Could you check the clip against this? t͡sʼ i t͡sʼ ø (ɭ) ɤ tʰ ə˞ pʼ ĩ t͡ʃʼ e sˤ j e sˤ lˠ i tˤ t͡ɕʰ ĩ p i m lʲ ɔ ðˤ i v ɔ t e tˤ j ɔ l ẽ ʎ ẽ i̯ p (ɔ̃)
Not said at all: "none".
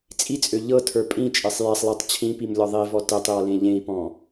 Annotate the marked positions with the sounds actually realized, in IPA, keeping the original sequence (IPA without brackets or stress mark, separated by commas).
ʎ, ɔ̃